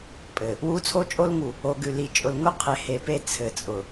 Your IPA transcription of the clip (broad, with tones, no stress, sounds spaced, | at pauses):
pʼ ɘ˨ | w u˦ t͡sʰ o˦ t͡ʃʼ o˦ l ŋ u˨ | o˨ ɡ ʉ˨ l i˨ t͡ʃʼ ʊ˨ l ŋ ʊ˦ qʰ e˨ h e˨ p e˦ t͡sʰ ɘ˨ t͡sʼ ʊ˨